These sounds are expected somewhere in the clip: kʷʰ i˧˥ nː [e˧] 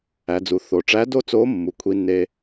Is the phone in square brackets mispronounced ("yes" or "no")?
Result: no